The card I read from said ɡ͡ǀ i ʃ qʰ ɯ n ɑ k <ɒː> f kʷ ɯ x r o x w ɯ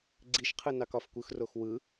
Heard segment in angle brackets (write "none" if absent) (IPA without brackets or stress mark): ɒ